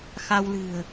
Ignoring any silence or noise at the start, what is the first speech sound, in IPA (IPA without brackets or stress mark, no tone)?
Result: x